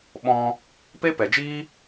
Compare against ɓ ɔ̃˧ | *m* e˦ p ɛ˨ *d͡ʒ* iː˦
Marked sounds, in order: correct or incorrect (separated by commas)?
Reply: incorrect, correct